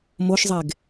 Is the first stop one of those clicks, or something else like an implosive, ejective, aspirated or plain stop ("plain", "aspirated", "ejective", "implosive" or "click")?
plain